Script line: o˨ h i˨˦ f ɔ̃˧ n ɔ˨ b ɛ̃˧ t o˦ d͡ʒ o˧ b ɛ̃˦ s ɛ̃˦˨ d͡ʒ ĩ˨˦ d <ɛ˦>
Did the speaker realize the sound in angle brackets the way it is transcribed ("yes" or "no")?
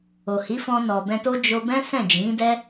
yes